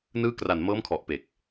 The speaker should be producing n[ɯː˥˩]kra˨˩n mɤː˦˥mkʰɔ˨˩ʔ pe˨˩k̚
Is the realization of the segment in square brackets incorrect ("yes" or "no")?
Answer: yes